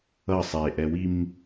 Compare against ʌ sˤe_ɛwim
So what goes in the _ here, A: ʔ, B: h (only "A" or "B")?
A